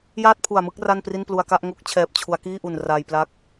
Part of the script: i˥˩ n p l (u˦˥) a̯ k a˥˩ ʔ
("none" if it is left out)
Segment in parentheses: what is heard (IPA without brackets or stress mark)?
u˧